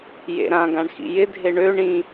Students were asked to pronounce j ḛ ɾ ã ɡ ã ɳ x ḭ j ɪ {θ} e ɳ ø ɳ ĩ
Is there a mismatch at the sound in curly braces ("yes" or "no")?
yes